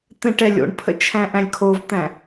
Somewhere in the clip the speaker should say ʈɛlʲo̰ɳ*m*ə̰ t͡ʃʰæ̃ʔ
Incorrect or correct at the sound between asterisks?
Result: incorrect: pʰ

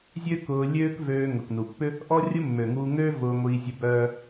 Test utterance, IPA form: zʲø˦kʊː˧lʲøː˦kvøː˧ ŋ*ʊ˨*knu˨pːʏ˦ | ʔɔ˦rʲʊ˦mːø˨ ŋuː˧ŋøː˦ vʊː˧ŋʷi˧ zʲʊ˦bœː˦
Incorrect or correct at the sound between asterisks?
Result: correct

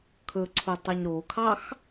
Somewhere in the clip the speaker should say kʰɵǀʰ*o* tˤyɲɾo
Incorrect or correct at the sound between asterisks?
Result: incorrect: u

